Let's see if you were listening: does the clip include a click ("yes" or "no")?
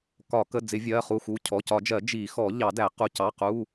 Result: no